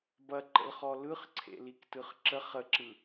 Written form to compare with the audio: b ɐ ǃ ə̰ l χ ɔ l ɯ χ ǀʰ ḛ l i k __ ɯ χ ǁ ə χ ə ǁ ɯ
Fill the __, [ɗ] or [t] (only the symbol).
t